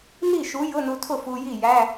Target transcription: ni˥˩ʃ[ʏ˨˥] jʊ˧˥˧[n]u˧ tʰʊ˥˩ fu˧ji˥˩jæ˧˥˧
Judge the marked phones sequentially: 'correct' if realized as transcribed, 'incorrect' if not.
incorrect, correct

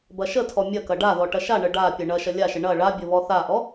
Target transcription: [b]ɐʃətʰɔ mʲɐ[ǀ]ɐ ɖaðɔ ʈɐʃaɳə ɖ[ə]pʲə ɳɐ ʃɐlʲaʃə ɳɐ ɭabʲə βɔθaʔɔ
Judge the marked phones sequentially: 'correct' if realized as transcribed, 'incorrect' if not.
correct, incorrect, incorrect

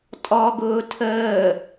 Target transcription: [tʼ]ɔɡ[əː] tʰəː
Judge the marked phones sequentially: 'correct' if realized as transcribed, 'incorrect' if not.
correct, incorrect

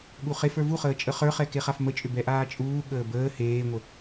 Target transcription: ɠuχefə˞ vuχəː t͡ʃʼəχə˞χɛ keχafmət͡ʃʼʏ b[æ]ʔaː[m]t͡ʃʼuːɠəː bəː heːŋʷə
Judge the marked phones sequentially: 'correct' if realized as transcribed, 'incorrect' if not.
incorrect, incorrect

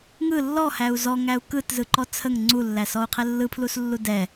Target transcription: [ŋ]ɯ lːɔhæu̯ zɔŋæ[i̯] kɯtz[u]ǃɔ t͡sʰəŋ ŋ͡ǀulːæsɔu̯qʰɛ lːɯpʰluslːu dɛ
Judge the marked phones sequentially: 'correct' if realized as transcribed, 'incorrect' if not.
correct, incorrect, incorrect

